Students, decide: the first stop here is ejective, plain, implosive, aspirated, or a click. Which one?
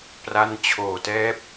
plain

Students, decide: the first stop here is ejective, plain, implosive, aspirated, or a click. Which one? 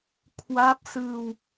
aspirated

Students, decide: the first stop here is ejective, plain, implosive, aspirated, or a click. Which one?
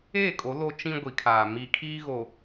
ejective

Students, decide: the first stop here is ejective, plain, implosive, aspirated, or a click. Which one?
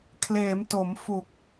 aspirated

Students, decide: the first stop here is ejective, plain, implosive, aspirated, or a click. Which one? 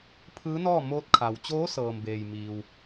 aspirated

